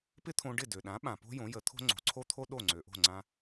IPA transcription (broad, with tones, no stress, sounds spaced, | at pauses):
p ɪ˥ t̪ʰ õ˧ ɖ ɪ˥˩ d ø˩ ɗ ã˩˥ ɓ ã˩ p o̤˥ j õ˩˥ j ə˩˥ t̪ʰ o̤˥ ŋ͡ǀ o̤˩ ǀʰ o˥ t̪ʰ o˥ ɗ o˥˩ ŋ͡ǀ ø˩ ʔ o̤˥˩ ŋ͡ǀ ã˧